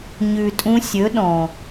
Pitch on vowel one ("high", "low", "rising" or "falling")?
low